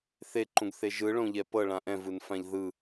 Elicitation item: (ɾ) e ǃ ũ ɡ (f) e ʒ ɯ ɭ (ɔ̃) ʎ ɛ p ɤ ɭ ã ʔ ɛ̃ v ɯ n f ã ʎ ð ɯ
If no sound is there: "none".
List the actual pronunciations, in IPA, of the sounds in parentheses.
θ, θ, õ

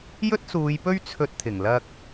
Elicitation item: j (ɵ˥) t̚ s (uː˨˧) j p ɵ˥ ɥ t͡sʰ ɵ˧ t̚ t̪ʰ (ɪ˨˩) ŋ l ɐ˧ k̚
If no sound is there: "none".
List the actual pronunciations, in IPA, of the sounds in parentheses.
ɵ˥, uː˨˧, ɪ˨˩

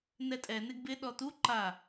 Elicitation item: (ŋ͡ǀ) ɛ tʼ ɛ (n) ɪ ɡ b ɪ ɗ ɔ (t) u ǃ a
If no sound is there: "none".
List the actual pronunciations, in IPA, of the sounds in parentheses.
n, n, t

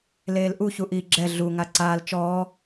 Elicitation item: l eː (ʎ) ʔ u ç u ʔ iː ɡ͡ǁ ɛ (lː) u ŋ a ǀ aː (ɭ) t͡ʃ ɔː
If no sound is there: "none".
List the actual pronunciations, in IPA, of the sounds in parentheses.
l, ɮ, l

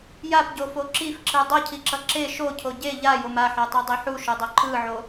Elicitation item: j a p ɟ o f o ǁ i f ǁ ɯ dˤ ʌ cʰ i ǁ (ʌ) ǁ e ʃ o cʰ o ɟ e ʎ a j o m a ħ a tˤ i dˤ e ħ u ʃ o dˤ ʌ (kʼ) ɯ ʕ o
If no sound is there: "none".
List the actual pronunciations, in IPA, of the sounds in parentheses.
ʌ, ǃ

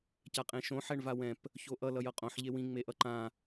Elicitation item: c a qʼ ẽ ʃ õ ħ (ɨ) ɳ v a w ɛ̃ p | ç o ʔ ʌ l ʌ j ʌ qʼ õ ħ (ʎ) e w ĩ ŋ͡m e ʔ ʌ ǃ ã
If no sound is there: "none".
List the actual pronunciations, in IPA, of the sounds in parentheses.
ɛ, ʎ

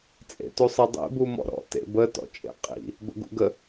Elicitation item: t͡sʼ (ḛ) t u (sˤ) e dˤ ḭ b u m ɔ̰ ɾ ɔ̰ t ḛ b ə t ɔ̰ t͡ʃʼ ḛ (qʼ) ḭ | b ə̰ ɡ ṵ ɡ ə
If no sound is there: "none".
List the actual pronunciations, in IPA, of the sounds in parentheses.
ḛ, sˤ, qʼ

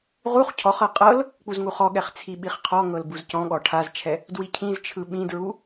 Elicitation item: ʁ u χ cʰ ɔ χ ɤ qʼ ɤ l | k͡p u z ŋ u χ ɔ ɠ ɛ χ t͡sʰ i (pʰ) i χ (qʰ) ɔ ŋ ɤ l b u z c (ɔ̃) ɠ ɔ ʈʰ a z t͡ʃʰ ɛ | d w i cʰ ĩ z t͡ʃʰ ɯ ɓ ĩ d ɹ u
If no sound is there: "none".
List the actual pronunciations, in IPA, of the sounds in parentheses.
ɓ, qʰ, ɔ̃

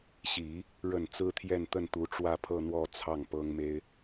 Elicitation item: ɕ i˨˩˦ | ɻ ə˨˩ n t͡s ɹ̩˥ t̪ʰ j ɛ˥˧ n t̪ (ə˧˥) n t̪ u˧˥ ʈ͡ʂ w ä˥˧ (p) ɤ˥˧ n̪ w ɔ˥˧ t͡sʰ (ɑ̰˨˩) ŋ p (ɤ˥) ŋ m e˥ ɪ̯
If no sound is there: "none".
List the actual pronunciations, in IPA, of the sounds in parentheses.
ə˥˩, pʰ, ɑ˥˩, ɤ˥

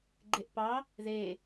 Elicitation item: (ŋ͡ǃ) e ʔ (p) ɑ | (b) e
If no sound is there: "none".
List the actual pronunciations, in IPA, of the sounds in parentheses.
ɡ͡ǃ, p, ð

